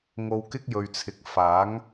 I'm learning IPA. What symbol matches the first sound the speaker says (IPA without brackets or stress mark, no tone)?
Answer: ŋ